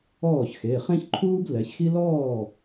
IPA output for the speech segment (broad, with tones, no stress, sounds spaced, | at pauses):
ɔː˥˩ ç x e˩˧˩ χ ẽ˥ ç ǃʰ uː˥ b l ɛ˩˧ ç x i˥ l ɔː˥˩